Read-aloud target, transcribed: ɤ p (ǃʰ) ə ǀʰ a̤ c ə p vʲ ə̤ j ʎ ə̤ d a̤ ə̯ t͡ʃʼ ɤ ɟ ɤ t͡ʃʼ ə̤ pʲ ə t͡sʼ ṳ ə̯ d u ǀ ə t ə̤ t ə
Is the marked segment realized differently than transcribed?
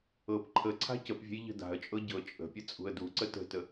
no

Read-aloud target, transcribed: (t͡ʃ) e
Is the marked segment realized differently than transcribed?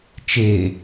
no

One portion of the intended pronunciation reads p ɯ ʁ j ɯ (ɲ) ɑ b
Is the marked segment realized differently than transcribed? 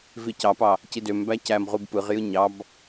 no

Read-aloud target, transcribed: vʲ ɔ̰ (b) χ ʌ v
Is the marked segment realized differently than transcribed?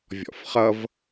yes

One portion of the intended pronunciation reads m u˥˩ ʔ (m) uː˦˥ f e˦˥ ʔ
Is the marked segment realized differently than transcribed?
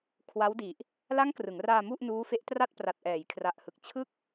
yes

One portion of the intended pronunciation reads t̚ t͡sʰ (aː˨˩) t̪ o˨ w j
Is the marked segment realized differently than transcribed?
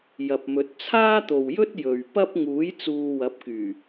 yes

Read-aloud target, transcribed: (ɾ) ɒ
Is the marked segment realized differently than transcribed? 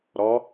no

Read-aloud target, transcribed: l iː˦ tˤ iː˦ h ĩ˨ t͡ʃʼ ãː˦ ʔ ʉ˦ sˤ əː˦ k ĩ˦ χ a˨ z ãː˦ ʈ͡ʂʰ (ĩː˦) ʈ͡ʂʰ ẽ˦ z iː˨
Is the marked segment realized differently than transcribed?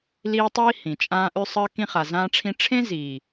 yes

